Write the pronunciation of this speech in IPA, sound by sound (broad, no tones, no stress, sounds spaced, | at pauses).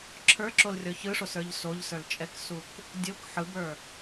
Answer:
ǁʰ ə˞ ǁ o l rʲ ɔ ç ɯ ʂ o s ə˞ ʎ s o ʎ s ə˞ l t͡ʃʼ ɛ k s u k | dʲ o k ħ ɯ b ə˞